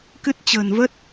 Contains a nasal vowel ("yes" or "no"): no